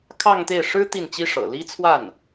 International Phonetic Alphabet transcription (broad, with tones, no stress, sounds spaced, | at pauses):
kʰ ɑ˥˧ ŋ t̪ e˥˩ ɪ̯ ʂ ɻ̩˥ t̪ i˥˩ n t͡ɕ i˥ ʂ ɤ̰˨˩ l i˥ t͡sʰ w a˥˩ n